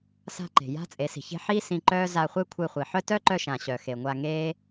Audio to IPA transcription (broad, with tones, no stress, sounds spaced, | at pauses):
s a̤˧ ǃ e̤˨ j a̤˦ t͡sʼ e˨˦ s i̤˨ ç e̤˦ ħ iː˦ s ĩ˧ ǃ œː˦ z a˧ χʷ e˦ kʷʰ e˧ χʷ i˨ ħ œ˦ t œ˦ ǃ œ˧ ʃ ã˨ ɕ œ˨ x e˨ ŋʷ a˧ ŋ eː˦